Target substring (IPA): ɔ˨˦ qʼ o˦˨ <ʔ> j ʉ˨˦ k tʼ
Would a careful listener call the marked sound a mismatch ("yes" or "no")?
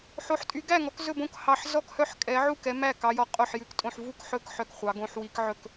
yes